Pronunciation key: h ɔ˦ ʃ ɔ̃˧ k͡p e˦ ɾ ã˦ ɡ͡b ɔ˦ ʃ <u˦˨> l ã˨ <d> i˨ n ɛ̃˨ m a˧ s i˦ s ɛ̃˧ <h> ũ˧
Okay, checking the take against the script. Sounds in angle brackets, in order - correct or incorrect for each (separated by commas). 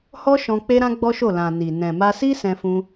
incorrect, incorrect, incorrect